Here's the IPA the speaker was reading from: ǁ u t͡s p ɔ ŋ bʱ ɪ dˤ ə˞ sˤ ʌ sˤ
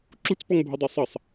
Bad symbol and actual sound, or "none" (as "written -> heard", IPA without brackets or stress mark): none